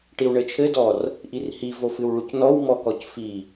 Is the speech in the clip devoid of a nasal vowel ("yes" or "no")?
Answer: yes